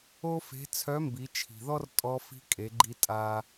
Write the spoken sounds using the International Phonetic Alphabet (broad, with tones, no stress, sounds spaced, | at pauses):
o˥ f e̤˧˥ t͡sʰ œ˧˥ m b i˩˧ t͡ʃʰ i̤˩ ð ɔ˥ r tʼ ɔ˧ f i̤˧ kʼ e˩˧ ɡ͡ǃ i˧ tʼ a˧